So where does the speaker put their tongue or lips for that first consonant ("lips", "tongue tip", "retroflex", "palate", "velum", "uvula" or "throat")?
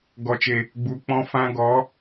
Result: velum